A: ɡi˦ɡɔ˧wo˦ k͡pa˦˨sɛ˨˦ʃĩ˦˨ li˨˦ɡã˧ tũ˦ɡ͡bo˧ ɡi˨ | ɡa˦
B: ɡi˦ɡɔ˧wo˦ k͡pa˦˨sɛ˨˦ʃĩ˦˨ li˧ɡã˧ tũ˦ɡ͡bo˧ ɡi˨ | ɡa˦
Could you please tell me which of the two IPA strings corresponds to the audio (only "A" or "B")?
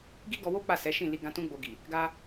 B